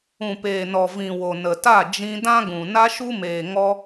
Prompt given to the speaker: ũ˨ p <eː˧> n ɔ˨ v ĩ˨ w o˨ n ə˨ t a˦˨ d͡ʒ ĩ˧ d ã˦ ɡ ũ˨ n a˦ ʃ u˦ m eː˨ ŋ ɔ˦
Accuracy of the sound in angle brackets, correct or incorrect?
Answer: incorrect